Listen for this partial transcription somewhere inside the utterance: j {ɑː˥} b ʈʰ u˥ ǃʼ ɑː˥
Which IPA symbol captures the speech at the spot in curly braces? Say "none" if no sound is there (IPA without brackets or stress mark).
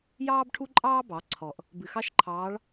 ɑː˥